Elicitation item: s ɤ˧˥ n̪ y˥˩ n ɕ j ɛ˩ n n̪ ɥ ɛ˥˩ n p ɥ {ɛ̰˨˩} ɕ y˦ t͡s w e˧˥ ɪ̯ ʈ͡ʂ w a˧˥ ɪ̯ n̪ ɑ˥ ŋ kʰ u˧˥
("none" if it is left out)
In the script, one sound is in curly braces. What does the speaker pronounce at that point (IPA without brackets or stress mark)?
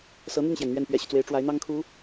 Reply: ɛ̰˨˩